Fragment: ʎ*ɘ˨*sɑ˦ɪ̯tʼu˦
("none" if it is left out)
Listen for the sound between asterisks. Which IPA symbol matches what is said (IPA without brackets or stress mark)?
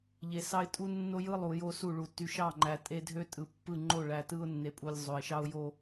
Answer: e˨